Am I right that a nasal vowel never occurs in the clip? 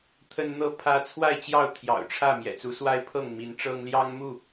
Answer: yes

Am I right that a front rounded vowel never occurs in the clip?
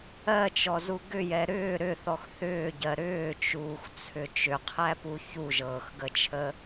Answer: no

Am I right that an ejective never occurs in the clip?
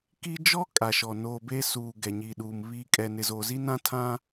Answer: no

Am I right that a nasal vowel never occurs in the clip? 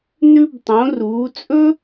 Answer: no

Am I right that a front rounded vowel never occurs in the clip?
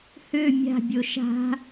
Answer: no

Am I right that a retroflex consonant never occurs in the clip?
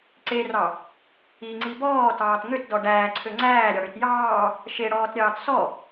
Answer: no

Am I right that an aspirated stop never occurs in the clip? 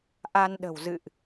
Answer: yes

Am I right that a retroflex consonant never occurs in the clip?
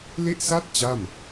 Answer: yes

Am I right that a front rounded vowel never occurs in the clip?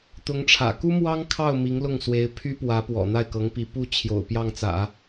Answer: no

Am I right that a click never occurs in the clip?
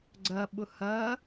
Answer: no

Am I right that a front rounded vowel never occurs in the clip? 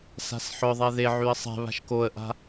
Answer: no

